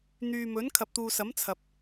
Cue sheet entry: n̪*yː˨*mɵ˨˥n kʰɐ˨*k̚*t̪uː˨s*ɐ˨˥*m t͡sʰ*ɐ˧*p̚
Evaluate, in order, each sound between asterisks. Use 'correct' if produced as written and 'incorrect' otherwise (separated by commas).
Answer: correct, incorrect, correct, incorrect